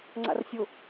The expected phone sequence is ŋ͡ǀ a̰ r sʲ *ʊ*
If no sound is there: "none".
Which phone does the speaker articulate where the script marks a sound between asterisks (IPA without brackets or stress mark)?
ʊ